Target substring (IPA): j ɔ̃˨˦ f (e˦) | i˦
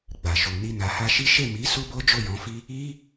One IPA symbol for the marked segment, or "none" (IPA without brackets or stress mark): i˦